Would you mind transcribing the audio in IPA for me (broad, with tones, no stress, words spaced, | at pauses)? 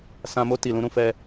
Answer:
sã˧mo˦ ti˨lũ˧ɾũ˧fɛ˧